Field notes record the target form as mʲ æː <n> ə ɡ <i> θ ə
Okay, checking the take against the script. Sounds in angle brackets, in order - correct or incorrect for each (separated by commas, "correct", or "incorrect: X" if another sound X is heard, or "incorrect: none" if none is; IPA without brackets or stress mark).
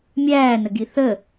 correct, correct